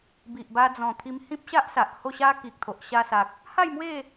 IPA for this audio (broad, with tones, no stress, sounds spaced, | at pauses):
b i˨ ʔ b a˧ d͡z ɔ̃˨˩ t̪ʰ i˧ m h ĩ˦ p̚ ɕ a˦ ʔ s a˨ ʔ h o˥˧ ɕ a˦ k i˨ k̚ t̪ʰ o˨ ʔ ɕ a˧ s a˨ k̚ | h a˥˧ j m w e˥˧